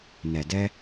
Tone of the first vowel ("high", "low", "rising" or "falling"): low